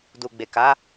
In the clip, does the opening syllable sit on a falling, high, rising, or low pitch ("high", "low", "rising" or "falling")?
low